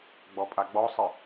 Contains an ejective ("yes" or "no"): yes